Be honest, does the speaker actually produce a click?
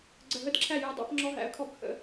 yes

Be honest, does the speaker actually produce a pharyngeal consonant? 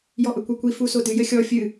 no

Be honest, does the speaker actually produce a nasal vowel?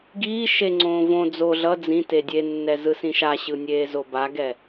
yes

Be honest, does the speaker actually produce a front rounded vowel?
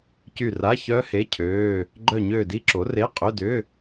yes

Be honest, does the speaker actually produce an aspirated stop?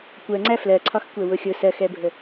yes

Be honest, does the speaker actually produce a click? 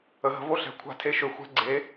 yes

